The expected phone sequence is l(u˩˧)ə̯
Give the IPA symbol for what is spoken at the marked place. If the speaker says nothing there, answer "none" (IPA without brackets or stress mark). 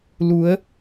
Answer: u˩˧